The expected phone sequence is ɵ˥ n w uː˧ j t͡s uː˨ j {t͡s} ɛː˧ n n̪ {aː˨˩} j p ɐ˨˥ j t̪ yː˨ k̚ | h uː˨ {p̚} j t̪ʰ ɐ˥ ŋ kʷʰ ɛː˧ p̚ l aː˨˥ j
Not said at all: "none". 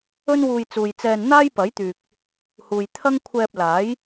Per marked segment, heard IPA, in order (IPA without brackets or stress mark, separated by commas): t͡s, aː˥, none